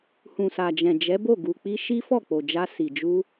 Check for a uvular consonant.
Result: absent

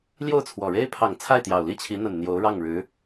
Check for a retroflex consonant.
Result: present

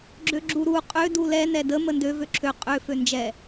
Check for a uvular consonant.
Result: present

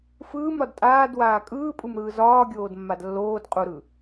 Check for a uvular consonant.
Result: present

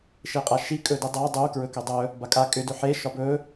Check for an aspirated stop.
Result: absent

